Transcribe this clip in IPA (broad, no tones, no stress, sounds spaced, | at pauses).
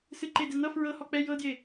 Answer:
s ɨ ǃ e d ɛ n̪ ʌ f ɹ ɤ h ɔ k͡p ɛ j ɤ d j e